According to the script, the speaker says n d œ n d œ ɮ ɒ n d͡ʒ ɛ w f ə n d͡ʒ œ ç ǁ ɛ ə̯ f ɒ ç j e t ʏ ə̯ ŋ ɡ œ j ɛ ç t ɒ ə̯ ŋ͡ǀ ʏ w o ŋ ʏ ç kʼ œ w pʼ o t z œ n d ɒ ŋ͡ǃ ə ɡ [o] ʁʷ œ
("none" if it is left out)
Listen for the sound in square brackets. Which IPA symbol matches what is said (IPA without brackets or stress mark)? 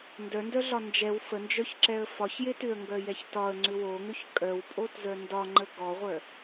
ɔ